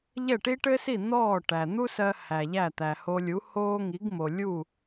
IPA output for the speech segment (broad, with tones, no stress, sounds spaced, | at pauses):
ʎ ɛ˥˩ ʈ i˥ ʈ ɘ˥ s i˥˩ n̪ ɔː˥˩ ʈ æ˩ n̪ u˥ s ɜ˧ h æ˩ ʎ æ˥˩ t̪ æ˩ h o˧ lʲ u˩˥ h oː˥ ŋ i˩˥ ɡ m o˩ lʲ u˥˩